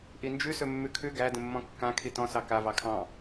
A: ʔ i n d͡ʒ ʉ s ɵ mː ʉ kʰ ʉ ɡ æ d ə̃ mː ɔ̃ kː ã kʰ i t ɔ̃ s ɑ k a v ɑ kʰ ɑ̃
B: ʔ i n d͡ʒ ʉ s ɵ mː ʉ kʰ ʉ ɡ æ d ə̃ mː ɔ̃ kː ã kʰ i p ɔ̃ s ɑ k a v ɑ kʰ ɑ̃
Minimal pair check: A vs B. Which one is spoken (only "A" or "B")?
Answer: A